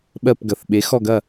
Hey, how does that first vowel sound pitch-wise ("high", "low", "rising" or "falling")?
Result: falling